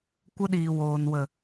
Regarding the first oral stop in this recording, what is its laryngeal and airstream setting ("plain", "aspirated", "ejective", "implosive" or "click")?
plain